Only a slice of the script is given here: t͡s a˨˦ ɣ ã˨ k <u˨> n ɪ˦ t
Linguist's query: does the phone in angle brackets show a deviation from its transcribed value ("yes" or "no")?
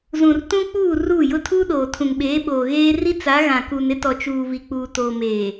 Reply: no